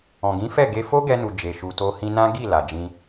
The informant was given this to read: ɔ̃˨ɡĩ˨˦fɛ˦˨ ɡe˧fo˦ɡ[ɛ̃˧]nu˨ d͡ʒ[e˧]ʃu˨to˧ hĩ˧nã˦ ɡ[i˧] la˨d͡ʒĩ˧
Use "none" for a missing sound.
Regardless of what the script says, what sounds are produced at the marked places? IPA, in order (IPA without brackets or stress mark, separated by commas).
ɛ˧, e˨, i˦˨